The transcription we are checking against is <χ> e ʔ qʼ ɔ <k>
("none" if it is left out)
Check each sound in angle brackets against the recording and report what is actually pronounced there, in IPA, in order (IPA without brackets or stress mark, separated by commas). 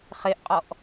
χ, ʔ